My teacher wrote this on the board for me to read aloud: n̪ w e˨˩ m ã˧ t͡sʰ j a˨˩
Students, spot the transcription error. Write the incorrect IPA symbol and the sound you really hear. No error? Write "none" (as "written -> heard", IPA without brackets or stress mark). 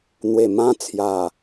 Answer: none